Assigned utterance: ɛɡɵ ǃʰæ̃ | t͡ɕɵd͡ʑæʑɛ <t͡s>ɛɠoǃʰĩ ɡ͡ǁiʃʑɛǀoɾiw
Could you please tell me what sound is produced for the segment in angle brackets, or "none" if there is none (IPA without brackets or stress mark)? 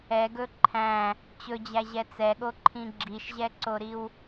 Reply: t͡s